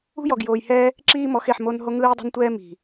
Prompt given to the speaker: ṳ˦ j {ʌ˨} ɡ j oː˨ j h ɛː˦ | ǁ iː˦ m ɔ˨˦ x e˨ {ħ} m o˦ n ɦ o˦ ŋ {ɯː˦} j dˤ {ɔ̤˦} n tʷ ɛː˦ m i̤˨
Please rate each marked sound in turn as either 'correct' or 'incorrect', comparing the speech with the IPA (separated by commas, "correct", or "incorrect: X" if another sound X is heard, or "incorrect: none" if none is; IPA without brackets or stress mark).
incorrect: ɔ˨, correct, correct, incorrect: o̤˦